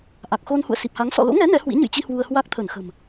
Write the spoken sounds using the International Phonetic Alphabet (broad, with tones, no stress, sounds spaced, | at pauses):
ʔ a˨˩ k̚ x o˧ n h ṵ˧˨ ə̯ s i˨˩ p̚ h a˨˦ ŋ s ɔ̰˧˨ l o̰˧˥ ŋ ɛ˨˦ n ɛ˨˦ h w ḭ˧˥ ɲ ɨ̰˧˨ j t͡ɕ i˧ h w u˧ ə̯ h w a˦˥ k̚ t̪ʰ ə˧˩ n x ə̤˨˩ m